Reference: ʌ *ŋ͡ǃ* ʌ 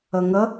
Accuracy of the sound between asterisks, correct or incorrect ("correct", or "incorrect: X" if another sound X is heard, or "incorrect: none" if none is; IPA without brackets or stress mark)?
incorrect: ŋ